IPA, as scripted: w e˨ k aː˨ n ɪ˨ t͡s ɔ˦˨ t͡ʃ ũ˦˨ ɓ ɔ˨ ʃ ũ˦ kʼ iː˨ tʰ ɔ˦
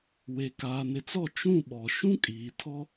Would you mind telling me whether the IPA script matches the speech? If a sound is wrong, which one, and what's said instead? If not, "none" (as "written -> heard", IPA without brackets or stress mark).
none